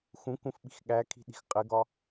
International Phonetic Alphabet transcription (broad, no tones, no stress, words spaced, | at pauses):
xũkũfɓi̤x ɠækʰi̤ɗi̤x qʼɪɡɒ